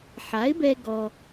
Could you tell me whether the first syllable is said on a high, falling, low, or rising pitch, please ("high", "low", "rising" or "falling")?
rising